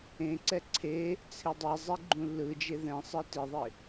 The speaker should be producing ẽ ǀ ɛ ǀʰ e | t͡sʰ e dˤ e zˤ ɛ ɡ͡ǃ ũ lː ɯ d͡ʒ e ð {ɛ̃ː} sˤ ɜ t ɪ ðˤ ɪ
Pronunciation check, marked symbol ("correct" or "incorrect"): incorrect